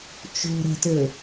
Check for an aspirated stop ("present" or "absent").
absent